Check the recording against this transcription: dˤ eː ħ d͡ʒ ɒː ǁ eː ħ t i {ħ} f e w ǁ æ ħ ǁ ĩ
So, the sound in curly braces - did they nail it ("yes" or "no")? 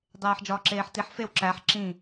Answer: yes